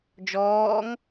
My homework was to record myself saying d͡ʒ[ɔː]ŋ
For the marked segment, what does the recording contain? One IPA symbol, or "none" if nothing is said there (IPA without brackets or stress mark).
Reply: ɔː